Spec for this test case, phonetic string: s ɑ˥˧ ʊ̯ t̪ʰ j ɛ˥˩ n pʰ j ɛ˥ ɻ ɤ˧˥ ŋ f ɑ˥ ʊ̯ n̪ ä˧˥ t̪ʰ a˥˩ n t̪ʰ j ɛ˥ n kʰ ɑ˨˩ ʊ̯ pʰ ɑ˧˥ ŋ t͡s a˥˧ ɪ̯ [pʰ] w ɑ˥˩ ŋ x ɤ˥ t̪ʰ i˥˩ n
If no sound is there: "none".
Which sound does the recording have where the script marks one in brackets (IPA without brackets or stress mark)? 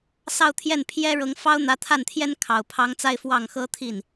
f